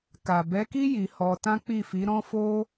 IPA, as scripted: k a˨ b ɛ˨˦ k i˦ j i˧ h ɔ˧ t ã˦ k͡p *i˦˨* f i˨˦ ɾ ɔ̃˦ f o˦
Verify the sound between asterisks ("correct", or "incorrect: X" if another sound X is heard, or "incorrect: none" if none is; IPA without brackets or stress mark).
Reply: correct